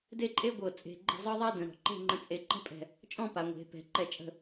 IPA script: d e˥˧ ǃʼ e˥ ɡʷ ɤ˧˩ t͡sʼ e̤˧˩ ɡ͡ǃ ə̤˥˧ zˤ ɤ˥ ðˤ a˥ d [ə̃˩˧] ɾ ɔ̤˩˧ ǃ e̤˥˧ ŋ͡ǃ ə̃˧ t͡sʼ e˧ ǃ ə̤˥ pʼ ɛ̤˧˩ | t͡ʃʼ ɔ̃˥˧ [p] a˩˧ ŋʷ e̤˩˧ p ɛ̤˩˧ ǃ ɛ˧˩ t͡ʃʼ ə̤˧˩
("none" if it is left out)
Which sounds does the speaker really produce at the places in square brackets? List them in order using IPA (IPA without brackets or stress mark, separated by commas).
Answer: ə̃˩˧, p